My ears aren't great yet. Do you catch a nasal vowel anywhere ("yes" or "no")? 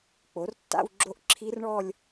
no